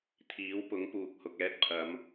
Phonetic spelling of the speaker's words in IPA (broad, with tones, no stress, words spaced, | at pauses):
t̪ʰiː˨˥wpʊ˨˥ŋ puː˨k̚hʊ˨k̚ɛː˥t̚pʰɐ˨˧m